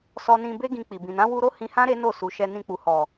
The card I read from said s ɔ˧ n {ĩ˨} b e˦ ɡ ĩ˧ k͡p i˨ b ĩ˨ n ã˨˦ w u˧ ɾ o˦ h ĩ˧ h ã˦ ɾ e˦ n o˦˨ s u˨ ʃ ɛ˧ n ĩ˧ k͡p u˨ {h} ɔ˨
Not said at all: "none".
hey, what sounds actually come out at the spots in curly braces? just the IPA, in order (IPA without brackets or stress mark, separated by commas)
ĩ˧, h